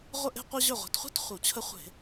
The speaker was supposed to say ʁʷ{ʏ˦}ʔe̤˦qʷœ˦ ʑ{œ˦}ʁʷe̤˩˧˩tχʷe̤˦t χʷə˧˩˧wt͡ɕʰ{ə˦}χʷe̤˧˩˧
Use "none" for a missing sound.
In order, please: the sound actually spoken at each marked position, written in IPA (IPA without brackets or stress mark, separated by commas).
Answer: ə˦, œ˧˩, ə˦